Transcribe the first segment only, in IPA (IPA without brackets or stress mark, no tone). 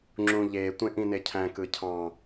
ŋ͡ǁ